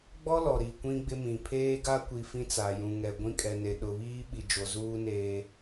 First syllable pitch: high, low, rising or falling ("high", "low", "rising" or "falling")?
high